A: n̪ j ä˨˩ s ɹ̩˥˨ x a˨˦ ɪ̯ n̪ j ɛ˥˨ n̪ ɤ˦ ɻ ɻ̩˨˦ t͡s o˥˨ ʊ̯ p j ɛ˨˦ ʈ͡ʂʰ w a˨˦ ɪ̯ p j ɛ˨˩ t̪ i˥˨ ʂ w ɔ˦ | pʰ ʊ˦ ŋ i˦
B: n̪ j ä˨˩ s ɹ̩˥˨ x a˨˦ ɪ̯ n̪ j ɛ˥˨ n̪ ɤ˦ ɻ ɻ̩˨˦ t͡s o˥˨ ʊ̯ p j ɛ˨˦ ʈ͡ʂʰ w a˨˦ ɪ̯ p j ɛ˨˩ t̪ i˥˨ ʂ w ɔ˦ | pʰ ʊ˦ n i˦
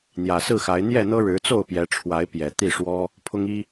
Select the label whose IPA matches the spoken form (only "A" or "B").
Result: A